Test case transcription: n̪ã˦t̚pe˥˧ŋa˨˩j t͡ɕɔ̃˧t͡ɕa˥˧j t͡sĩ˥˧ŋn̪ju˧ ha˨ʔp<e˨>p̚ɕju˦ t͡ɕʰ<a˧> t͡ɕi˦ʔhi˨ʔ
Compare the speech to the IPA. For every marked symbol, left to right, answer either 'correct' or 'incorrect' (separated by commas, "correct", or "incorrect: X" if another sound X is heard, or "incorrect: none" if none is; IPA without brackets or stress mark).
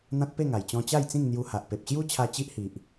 correct, correct